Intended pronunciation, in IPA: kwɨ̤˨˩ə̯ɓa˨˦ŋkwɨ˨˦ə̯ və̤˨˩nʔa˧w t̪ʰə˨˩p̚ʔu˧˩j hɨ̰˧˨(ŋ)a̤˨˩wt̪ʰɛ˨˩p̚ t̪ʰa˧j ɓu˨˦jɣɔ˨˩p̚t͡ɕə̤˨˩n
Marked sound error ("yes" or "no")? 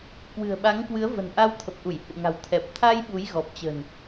no